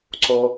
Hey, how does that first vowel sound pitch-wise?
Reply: low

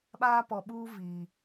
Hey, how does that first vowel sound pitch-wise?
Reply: high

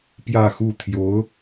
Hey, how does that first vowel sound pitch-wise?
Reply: falling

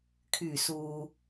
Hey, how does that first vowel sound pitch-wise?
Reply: low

